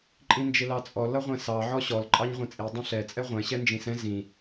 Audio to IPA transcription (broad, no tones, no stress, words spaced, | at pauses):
ǃʼĩnd͡ʒɪlɑt͡sʼɔ lʌʁʷɛ̃sɑ ʕɔɕɔl ǃʼɑɲʁʷɛ̃t͡sʼi dˤɛ̃ɬɛ t͡sʼɛʁʷɛ̃ ɕɛnd͡ʒĩsɛ̃ zĩ